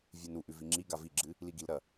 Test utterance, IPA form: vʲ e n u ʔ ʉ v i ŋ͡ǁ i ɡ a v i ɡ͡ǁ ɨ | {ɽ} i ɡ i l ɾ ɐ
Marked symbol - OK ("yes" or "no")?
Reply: no